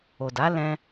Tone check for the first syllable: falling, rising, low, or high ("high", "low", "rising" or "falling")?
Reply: low